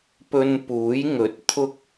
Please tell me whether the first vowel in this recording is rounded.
yes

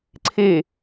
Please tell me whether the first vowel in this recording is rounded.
no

